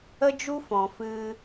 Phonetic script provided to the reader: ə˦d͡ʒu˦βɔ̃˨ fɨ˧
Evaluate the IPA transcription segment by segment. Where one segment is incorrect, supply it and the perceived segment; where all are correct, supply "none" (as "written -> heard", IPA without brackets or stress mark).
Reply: β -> f